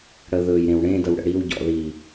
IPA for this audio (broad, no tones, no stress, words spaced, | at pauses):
ɽə ðɵj ɾẽwɽẽ dəwɽə̰ɽiw ɟɔ̰ði